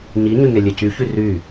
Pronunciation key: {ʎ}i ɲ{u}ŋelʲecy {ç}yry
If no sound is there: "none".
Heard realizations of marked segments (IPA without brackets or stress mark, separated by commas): ɲ, y, ç